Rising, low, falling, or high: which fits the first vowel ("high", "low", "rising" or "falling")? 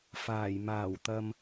low